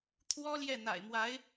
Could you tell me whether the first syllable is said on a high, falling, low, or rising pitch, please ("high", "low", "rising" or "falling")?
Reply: high